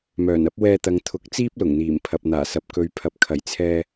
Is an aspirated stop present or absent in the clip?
present